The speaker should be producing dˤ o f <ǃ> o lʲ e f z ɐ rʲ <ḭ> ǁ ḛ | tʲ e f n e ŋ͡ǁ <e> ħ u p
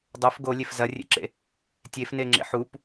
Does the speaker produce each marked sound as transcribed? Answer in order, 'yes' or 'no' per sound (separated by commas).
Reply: no, no, no